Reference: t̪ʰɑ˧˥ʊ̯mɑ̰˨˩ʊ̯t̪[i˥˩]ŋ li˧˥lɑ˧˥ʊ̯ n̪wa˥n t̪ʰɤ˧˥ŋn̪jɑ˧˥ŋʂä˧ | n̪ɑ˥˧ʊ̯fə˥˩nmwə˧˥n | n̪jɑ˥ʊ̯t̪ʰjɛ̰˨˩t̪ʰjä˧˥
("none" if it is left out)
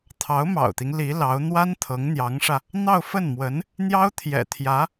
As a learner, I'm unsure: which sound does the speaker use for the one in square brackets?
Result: i˦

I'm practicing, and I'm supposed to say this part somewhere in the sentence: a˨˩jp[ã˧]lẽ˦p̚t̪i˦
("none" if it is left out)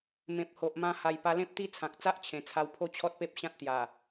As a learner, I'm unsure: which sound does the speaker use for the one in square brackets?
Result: a˧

